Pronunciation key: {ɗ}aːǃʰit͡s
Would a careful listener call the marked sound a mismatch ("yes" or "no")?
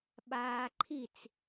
yes